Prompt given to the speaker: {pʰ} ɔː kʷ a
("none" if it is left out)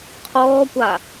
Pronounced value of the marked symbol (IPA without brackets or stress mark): qʰ